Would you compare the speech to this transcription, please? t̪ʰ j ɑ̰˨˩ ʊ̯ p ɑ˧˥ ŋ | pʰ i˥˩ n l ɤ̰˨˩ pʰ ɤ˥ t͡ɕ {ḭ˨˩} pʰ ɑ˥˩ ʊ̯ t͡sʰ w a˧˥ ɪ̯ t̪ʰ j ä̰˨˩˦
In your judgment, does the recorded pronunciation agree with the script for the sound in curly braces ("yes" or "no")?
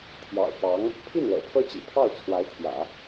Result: yes